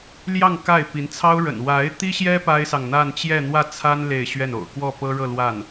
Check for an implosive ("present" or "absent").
absent